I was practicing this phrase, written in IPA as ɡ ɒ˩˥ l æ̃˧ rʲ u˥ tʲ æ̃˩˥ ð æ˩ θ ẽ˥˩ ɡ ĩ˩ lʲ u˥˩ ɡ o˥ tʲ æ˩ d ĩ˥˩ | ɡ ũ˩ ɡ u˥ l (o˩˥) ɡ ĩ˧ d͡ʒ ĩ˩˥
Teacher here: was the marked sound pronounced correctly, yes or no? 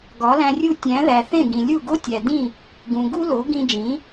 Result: yes